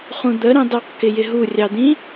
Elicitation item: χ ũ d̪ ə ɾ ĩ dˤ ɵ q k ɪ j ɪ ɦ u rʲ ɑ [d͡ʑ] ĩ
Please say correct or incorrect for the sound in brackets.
incorrect